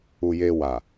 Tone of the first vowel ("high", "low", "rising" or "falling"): low